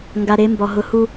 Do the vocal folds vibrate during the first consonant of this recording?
yes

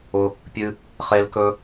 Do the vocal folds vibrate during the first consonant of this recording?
no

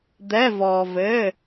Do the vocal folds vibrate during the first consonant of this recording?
yes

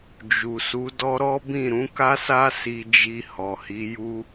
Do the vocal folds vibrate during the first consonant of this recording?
yes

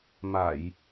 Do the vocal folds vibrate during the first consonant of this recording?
yes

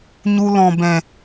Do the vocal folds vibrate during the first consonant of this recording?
yes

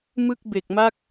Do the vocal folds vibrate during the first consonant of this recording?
yes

